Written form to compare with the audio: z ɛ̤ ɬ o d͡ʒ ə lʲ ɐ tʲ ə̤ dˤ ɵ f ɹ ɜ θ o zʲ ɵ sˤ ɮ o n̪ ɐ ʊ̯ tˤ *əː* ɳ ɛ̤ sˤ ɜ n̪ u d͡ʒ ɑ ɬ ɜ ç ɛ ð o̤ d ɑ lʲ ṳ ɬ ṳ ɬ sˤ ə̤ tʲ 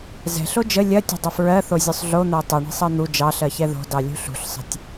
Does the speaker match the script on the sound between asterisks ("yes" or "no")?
no